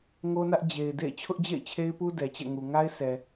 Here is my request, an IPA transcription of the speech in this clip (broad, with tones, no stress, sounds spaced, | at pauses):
ŋ o˦ n ä˦ ʔ d͡ʑ e˨ ɪ̯ d ḛ˦˨ ɪ̯ t͡ɕʰ ʊ˦ ʔ d͡ʑ ḛ˦˨ ɪ̯ t͡ɕʰ e˦ ɪ̯ p u˦ d ɛ˨ t͡ɕ ɛ̰˦˨ ŋ u˨ ŋ a˦ ɪ̯ sʰ ɛ˨